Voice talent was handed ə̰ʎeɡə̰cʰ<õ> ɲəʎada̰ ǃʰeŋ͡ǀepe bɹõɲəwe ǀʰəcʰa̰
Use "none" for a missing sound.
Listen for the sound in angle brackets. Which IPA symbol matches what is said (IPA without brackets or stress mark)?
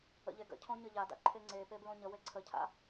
õ